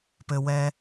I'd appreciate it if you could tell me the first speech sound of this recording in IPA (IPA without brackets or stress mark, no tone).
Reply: p